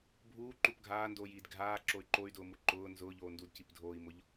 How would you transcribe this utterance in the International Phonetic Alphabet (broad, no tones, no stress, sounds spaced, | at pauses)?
bʱ uː ǃ u p ɡʱ aː n d oː j iː d ɡʱ aː ǁ o y̯ ǃ o y̯ d ʊː m u ǃ ʊː n z ʊː ʎ oː n d u d c i p dʱ oː i̯ m ʊ ʎ